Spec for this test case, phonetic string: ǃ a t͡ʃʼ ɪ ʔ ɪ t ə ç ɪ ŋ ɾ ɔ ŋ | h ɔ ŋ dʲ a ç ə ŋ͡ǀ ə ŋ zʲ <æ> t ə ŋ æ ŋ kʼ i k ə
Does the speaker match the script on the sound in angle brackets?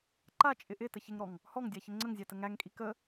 yes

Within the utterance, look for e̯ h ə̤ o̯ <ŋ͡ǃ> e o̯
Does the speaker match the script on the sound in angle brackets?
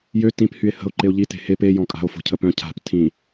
no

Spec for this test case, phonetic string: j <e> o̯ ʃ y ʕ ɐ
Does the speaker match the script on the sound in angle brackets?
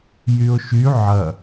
no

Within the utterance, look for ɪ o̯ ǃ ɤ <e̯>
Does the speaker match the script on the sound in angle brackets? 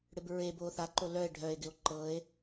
yes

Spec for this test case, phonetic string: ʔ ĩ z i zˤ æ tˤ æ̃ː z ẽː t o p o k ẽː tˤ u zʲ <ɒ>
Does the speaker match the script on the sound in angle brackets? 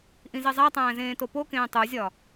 yes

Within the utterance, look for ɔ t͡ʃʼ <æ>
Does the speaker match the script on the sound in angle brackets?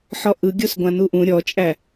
yes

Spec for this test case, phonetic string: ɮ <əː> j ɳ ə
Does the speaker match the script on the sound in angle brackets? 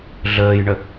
yes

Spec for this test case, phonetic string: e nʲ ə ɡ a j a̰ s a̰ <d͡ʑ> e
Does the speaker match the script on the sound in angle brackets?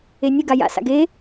no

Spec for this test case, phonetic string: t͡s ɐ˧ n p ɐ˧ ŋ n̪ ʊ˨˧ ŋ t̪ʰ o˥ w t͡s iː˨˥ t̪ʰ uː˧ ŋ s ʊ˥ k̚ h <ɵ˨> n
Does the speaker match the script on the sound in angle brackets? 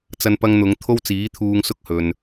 yes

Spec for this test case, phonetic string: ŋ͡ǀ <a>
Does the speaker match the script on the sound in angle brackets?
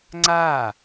yes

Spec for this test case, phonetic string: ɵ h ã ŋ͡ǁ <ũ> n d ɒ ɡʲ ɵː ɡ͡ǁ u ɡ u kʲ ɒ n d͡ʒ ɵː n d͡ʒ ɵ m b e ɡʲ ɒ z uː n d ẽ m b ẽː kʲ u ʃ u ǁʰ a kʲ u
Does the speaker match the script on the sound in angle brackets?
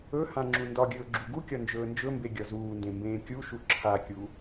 yes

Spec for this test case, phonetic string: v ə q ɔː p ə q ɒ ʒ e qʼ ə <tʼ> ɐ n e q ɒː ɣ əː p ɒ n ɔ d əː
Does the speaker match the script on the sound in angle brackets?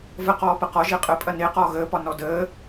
no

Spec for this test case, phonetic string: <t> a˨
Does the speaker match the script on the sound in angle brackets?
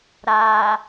no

